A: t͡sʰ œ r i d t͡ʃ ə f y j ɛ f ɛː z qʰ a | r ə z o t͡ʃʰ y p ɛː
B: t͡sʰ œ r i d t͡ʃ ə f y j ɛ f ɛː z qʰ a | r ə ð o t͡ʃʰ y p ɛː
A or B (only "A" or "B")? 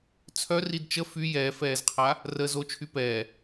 A